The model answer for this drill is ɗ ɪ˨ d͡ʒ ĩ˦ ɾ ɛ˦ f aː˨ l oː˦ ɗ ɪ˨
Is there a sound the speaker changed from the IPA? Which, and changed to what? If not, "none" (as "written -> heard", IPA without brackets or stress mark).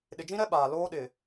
f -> ɓ